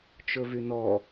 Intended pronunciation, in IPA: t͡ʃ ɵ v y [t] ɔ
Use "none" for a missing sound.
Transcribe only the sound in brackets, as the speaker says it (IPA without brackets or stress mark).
n